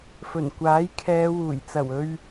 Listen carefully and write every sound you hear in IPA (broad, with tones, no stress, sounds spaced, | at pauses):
f ɵ˨˩ n kʷ aː˨˥ j kʰ ɛː˨˧ w uː˨˩ j t͡s ɐ˨˩ w ɵ˨ ɥ